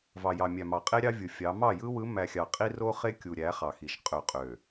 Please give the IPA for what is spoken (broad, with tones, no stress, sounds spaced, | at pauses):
v ɑ˨ j ɑ˨ mʲ æ˨ m ɑ˨ qʼ e˦ ɾʲ ɑ˦ vʲ ɯ˨ fʲ ɑ˨˦ m ɑ˦˨ j ɯ˦ w ɯ˨˦ m æ˨ xʲ ɑ˨ qʼ i˦ r o˦ χ e˦ kʲ u˨ ɾʲ æ˨˦ χ ɑ˨ x i˨ ʃ qʼ ø˨ qʼ ø˨